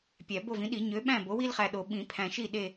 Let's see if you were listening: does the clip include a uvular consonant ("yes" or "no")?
yes